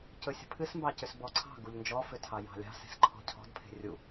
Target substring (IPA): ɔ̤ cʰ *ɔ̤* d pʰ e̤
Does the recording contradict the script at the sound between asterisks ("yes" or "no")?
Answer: no